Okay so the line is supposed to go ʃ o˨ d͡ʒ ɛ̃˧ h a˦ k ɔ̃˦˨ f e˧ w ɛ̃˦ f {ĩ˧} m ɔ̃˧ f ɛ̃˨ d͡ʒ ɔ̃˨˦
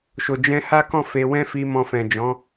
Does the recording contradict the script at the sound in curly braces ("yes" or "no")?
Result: yes